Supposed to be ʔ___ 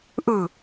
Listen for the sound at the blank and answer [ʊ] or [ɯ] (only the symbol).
ɯ